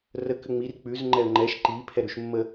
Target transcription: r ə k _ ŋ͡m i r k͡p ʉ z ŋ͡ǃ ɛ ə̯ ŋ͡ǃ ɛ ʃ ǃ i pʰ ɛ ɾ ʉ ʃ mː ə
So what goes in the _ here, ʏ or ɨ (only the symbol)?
ʏ